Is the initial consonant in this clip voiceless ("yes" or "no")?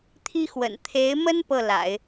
yes